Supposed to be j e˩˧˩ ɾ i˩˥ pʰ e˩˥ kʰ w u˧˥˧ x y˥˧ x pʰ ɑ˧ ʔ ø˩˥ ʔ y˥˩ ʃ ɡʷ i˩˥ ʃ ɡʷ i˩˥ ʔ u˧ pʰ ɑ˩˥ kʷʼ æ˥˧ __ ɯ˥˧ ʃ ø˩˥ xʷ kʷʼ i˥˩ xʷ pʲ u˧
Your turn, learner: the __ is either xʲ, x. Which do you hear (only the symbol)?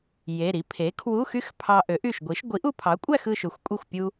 x